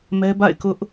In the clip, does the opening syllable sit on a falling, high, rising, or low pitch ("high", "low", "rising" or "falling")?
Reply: high